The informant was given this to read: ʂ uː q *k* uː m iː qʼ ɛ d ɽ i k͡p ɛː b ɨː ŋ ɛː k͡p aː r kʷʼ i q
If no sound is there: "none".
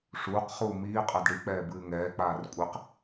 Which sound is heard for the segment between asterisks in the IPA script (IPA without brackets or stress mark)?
χ